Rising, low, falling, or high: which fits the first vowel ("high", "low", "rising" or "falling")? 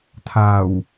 low